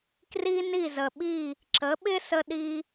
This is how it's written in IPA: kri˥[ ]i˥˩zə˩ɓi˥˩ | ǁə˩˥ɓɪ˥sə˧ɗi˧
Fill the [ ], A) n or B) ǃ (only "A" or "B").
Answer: A